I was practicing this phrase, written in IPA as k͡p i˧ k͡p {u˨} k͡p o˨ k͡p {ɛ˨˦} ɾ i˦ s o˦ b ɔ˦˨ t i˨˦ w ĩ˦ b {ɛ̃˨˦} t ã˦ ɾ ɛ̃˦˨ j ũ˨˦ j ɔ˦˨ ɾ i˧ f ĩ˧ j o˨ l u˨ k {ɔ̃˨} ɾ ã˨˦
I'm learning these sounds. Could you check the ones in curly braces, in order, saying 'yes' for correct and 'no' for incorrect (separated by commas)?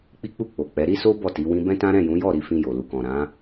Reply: no, yes, no, yes